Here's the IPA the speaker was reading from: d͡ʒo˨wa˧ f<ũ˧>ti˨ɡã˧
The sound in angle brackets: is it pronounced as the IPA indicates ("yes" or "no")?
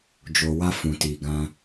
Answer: no